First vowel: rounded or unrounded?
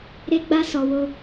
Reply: unrounded